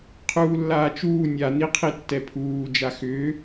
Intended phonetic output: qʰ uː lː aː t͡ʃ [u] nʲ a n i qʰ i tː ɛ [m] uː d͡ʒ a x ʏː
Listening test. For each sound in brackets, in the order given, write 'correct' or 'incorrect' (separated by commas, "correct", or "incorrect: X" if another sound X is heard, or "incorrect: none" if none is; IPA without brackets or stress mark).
incorrect: uː, incorrect: pʰ